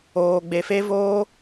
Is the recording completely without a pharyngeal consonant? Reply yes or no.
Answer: yes